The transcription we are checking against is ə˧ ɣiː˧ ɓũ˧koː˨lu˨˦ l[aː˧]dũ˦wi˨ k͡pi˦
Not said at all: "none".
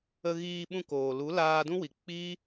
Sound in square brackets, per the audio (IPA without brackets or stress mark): aː˧